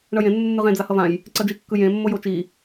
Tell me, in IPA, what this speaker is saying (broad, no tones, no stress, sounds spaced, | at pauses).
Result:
ɳ ʌ j ẽ nː u nː ɯ ʁ ẽ d͡z a h ʌ v ã j | ǀ ʌ d͡ʒ i kː ɯ j ẽ mː o j o t͡ʃ i